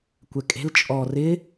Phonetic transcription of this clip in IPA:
kʷ ɛ kʼ e̤ l t͡ʃʼ ɔ r ɪ

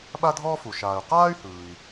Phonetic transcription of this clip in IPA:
ɓ a˥ dʱ ɔː˥ f u˩ ʃ aː˩ y̯ q aː˥ y̯ h ɯː˩ i̯

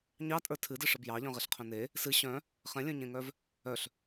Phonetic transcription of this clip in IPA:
ɲ ɑ tʼ ə˞ tʰ ɨ d ɨ ʂ ə b j ɑ ʎ œ̃ ʁ e ɬ qʰ œ̃ n e | s ɨ ɕ œ̃ | χ ɛ̃ lʲ œ̃ ɲ ẽ ŋ œ v | œ ɬ

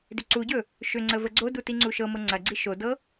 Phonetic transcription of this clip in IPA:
d ʏ ǀ u ɟ ɵ | ʃ ʏ ŋ͡ǀ ə v ə ɡ͡ǀ o d u t i ŋ͡ǀ u ʃ ɤ m ɤ ŋ͡ǀ ɐ ɡ͡ǀ i ʃ o d ɤ

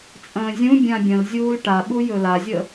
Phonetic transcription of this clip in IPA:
t͡sʼ ə̃ː zʲ ũ bʲ ã bʲ ə̃ l zʲ uː l ʈ a ɓ u j ɵ l a zʲ ə

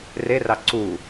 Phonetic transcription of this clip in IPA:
r e r ɑ ǀ u

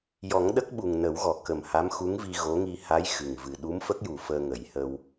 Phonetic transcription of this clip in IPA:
j ɔ˨˩˦ ŋ ɗ ə˦˥ k̚ ɓ u˨˩ ŋ n ə˨˩˦ w ɣ ɔ˨˩˨ k ə˨˩ m h a˧˥ m x u˧˥ ŋ v i˧ ɣ o˧˥ ŋ i˧ h a˧˥ j x ɨ˨˩ ŋ v ɨ˨˩ ɗ u˧˥ m f ə˦˥ k̚ j u˨˩ f əː˧ ŋ ə˨˩˦ j h ə˧ w

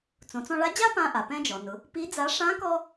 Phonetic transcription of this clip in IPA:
t͡s õ˩˧ t͡s ɔ̃˧ ɭ a˧˥ d͡ʑ a˥ p ã˧ ʔ a˩ p ɛ̃˧ d͡ʒ ɔ˩ n ʊ˩˧ | p i˧˥ d͡z a˧˥ ʂ ã˧˥ k ɔ˧

